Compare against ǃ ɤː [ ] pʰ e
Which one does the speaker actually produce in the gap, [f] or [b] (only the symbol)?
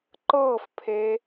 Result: f